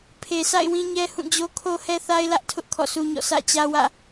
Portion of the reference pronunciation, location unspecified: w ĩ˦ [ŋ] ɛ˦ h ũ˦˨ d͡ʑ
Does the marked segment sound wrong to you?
yes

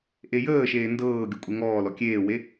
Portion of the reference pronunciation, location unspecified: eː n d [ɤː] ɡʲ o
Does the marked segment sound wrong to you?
no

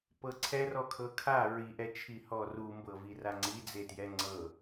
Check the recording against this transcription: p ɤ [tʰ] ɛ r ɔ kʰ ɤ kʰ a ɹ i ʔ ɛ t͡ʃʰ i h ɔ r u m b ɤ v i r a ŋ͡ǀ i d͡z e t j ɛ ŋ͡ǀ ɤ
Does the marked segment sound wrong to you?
yes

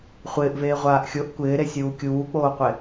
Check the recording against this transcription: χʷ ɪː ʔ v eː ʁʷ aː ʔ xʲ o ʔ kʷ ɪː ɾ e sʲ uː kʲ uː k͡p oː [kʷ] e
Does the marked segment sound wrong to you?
yes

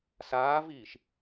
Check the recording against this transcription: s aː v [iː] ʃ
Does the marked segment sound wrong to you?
no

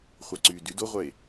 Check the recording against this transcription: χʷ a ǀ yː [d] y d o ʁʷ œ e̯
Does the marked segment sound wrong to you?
no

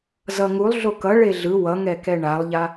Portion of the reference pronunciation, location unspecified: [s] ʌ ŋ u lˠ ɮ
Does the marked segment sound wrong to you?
yes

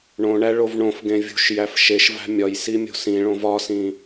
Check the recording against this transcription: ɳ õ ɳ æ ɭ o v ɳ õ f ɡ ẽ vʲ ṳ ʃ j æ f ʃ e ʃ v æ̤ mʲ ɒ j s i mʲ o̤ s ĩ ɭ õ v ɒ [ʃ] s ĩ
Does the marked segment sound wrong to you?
yes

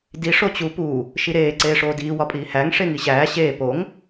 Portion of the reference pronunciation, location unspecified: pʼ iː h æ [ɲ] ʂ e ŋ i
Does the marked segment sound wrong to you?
yes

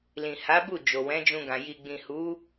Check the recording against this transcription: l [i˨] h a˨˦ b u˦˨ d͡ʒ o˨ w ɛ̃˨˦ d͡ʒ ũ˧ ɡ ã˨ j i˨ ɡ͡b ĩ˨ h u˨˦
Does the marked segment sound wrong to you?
yes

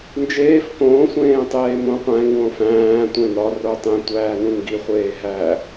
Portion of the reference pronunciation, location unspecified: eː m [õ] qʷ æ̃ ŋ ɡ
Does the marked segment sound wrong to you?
no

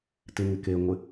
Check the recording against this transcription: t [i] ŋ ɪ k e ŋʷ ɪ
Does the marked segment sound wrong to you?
yes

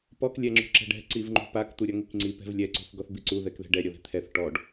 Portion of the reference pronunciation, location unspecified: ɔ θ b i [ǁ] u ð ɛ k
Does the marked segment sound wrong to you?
yes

